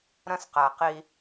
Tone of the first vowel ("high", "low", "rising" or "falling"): high